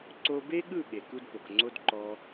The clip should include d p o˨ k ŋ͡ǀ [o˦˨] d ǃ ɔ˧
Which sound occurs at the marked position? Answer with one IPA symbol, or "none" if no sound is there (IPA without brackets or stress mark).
o˦